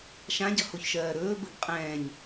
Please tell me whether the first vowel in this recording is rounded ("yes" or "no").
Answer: no